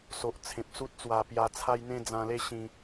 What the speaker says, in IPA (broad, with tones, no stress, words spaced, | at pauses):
so˨ʔt͡sʰẽ˨p̚su˦t̚t͡swa˧ pja˧t͡sʰa˦jn̪ẽ˦ d͡zã˧le˥˧ɕĩ˧